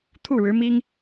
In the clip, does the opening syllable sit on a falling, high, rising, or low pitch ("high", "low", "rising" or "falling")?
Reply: falling